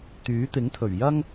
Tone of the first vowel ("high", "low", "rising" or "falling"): rising